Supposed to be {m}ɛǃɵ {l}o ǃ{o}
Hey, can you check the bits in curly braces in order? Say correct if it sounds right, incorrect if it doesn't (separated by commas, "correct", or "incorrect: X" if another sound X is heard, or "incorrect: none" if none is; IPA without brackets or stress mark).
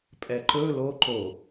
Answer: incorrect: pʼ, correct, correct